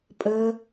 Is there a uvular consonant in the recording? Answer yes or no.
no